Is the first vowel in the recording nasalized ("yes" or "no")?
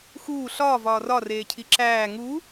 no